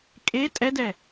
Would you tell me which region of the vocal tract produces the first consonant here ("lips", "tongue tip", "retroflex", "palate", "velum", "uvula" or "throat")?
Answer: velum